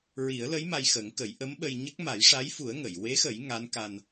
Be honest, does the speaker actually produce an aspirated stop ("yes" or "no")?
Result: no